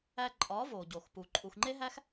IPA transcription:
æ˧ ǃʼ ɒ˨˦ v o˨ ɟ o˨ x p u˨ ǃʼ u˨ x ŋ͡ǃ e˦ ɦ æ˦ x

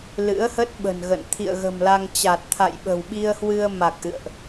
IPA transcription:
l ɨ̰˧˥ ə̯ h ə˦˥ t̚ ɓ ə̤˨˩ n ɣ ə̰˧˨ n t̪ʰ ḭ˧˨ ə̯ ɣ ə̤˨˩ m l a˧ ŋ t͡ɕ a˨˩ t̚ t̪ʰ a̰˧˨ j ɓ ə̤˨˩ w ɓ i˧ ə̯ h w ɨ˧ ə̯ m a˨˩ k̚ ʔ ɨ̰˧˨ ə̯ ʔ

